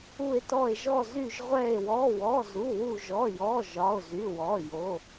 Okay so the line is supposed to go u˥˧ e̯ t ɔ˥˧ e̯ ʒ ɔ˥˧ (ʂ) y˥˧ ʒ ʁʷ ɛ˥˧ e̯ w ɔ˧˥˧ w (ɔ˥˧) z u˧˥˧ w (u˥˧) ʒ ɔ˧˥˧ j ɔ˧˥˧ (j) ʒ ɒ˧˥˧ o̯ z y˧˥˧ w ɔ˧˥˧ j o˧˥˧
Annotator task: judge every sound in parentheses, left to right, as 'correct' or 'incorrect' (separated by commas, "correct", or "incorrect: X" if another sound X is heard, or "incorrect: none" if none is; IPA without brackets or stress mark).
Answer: incorrect: z, incorrect: ɔ˧˥˧, correct, incorrect: none